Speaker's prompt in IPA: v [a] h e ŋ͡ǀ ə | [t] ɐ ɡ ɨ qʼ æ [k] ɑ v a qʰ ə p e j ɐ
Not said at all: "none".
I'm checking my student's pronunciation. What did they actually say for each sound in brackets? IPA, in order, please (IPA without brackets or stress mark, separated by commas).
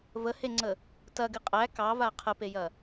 ə, t, k